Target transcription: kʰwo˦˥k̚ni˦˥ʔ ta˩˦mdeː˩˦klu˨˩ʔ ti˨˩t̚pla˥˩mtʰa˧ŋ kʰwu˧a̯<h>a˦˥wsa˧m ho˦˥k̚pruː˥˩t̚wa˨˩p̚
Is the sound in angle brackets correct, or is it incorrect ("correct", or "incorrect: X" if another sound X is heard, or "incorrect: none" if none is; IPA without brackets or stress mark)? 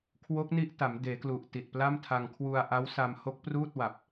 incorrect: ʔ